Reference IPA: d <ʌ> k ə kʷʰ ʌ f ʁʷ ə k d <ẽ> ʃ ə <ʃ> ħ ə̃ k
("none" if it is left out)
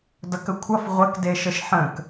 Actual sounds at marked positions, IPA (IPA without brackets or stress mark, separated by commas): ʌ, e, ʃ